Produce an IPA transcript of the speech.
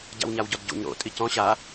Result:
ɟ a̰ w ɲ a w ɟ ɔ d ɟ ṵ ɲ ɾ o̰ tʼ i c ɔ̃ ɕ a

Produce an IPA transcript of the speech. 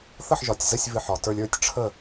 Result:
θ ə˥˧ ħ ʒ ɒ˧˩ tʲ z ə˥˧ sʲ v ɨ˧˩ ħ ɒ˩˧ t ə˞˧ lʲ ə˞˥˧ tʲ ʈ͡ʂʰ ə˥˧

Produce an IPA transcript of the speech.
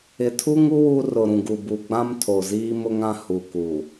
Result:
ɪ˨ tʰ u˦ ŋ u˦ w u˦ r ʊ˨ ɾ ũ˨ ɡ u˨ b u˨ ɡ͡b ã˦ m tʰ o˨ z iː˦ m ʊ˦ ŋ ã˦ h u˨ k u˨

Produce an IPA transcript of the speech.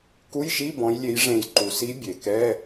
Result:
k u˧˥˧ j ʃ i˧˥˧ b ɔ̃˨˦ j lʲ e˨˦ j ʐ ẽ˨˩˦ j ǃ u˩ s i˨˦ bʲ e˩ k ɛ˧˥˧

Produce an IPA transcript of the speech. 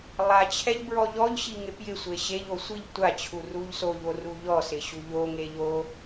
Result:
lˠ a t͡ɕʰ ɛ ʎ b ɹ ɔ ʎ ɔ ʎ ɕ i ŋ e p j ɪ sʷ e ɕ e ʎ o sʷ i ʎ tʷ a t͡ɕʰ u r u ʎ s o ʎ o r u ʎ ɔ s ɪ ɕ u ʎ o ŋ e ʎ o

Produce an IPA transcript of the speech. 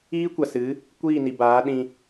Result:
iː˦ kʷ a˨ s ɨ˨˦ | kʷ iː˦˨ n i˨ b aː˨˦ ɗ ĩ˧

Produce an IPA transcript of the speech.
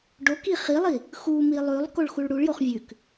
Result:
ɖ o k i χ i lˠ i | x u m i lˠ ʉ lˠ k o ɭ x u ɭ ɽ u ɭ j o χ vʲ ʉ k

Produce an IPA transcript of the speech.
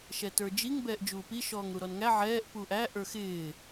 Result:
ʃ ɛ t ə˞ d͡ʒ i ŋ b ɛː ʔ d͡ʒ uː p i ʃ ɔː ŋ ɾ u ɾ ɔ n ŋ æ ʕ ɛː ʔ p uː ʔ æ ʔ ə˞ x ɪː

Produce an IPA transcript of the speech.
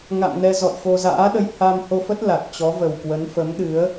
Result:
ŋ a̰˧˨ m n ɛ˧ z ɔ̰˧˨ j f o˧ z a̰ː˧˥ ɗ ə˧ j h a˧ m h o˧ f ə˦˥ t̚ l a˨˩ t̚ t͡ɕ ɔ˨˦ v ə˨˩ w k w ə˨˦ n f ə˨˦ m ɗ ɨ˨˦ ə̯

